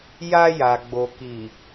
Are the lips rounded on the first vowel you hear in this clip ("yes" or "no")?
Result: no